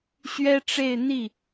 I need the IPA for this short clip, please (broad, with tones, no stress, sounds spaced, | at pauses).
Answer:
ɕ ɥ ɛ˥ ʈ͡ʂ e˥˧ ɪ̯ n̪ i˥˩